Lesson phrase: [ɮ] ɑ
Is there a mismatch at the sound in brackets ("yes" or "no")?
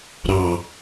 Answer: yes